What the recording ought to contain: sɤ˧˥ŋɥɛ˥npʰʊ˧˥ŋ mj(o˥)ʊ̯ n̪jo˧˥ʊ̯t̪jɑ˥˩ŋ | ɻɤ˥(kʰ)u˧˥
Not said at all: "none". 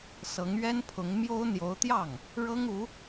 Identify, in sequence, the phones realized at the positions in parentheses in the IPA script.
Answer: o˥, ŋ

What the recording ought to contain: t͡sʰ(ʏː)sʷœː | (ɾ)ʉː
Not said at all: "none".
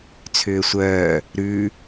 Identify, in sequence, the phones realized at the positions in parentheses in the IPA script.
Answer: ʏː, ɾ

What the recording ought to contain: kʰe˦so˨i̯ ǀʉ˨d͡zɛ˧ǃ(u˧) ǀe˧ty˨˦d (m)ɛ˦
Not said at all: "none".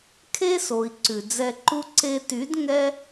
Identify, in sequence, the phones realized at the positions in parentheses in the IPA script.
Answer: u˦, ŋ

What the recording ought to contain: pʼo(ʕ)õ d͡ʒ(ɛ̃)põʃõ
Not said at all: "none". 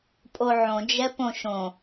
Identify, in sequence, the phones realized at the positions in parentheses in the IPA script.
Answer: ʕ, ɛ

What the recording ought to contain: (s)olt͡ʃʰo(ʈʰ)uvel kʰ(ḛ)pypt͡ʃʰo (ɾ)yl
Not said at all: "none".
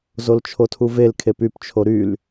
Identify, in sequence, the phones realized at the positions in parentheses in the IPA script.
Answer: z, tʰ, e, ɾ

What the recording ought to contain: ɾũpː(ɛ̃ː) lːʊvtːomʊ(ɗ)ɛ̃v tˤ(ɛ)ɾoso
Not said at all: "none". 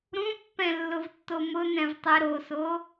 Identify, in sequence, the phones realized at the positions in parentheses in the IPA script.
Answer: ɛ̃, n, ɛ

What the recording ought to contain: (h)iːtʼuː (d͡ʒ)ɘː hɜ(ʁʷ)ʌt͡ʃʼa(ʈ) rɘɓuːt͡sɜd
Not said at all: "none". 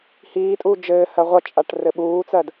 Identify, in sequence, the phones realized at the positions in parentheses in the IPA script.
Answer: h, d͡ʒ, ʁʷ, ʈ

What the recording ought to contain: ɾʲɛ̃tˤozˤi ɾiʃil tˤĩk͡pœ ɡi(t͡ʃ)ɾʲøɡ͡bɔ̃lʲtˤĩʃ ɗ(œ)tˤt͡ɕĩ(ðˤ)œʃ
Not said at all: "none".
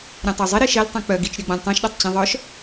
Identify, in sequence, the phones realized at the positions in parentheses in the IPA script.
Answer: t͡ʃ, ø, ðˤ

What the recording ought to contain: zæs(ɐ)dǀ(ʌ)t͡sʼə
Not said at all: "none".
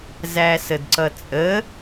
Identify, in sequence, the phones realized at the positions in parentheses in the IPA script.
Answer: ə, ʌ

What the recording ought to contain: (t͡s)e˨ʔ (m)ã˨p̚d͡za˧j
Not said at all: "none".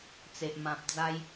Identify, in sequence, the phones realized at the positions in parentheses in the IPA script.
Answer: t͡s, m

